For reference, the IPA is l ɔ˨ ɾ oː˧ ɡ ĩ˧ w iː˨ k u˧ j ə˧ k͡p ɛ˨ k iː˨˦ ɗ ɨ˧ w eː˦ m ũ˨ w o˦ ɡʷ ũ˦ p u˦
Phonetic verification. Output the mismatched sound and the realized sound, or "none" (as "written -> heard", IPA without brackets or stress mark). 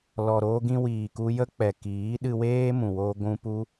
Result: none